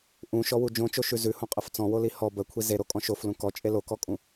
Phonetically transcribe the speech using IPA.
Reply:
ʔ ũ ʃ ɔ w u d͡ʒ õ t͡ʃ o ʃ ʉ z ʉ h õ qʼ ə f t͡s ɔ̃ w o l i h ɔ b ə kʷʰ i z e ɾ o kʼ ɔ̃ ʃ o f l ũ k ɔ t͡ʃʼ e l o k ɔ kʼ ũ

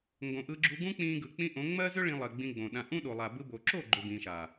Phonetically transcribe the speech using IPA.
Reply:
ŋ ɡ õ˨ ʔ ɯ˧ ɡ͡ǁ u˧ ɡ ũ˦ k͡p ĩː˧ ɡ ɯ˨ k͡p ĩ˦ ʔ õ˨˦ ŋ͡m ɜ˦ z ʏ˦ ɭ ĩ˧ lˠ ɜ˨ ɡ͡b ĩ˧ ɡ͡b õ˨ ɗ ã˧ ʔ ũ˦ ɗ o˨ lˠ a˨ b ɯ˧ b o˨ ǁ o˦˨ ɡ͡ǃ ʏ˨ b ĩː˨ ʃ a˨

